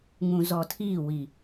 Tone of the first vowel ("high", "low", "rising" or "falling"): low